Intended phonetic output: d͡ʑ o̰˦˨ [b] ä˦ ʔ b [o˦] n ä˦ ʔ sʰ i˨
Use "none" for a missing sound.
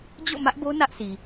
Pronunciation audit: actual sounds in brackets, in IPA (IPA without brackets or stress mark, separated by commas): m, o˦